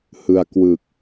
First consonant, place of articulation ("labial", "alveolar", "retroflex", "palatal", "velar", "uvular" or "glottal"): glottal